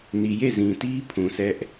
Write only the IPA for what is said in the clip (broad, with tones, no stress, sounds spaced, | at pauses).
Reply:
n i˨ j e˦˨ z ĩ˨ t i˦ pʰ ũ˨ s ɛ˦ ʔ